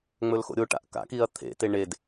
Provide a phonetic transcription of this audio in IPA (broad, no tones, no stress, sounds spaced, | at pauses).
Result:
ŋ͡m ɵ l x o̰ ɾʲ o ʈ a̰ ʔ k a̰ k i ɐ̯ t̪ʰ ḛ t e ɳ e d